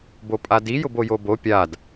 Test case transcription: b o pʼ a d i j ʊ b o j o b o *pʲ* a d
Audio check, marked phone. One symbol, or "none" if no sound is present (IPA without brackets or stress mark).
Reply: pʲ